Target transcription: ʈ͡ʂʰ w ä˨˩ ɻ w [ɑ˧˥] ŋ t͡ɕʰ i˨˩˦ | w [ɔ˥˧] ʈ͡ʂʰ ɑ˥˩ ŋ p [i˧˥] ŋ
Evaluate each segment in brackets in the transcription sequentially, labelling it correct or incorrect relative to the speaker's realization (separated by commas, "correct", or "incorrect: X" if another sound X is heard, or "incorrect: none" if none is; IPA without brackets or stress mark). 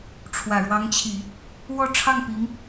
correct, correct, correct